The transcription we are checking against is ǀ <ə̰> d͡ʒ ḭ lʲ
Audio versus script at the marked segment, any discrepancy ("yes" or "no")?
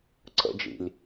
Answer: no